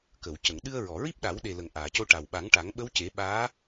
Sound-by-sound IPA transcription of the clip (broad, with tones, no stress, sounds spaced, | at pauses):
k ə˨˩˨ w c ə˨˩˨ ŋ ɗ ɨ˧ ə̯ ɹ ɔ˨˩˨ ɹ i˦˥ p̚ ɗ a˨˩˦ w ɗ e˨˩ l ə˨˩˨ ŋ ʔ aː˨˩˨ c o˧ ʈ a˨˩ w ɓ a˨˩˦ ŋ ʈ a˨˩˦ ŋ ɓ ə˧˥ w c e˨˩˦ ɓ aː˧˥